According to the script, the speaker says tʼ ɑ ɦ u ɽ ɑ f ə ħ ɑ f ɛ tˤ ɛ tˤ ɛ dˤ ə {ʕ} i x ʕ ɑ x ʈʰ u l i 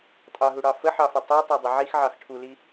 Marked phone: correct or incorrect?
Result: correct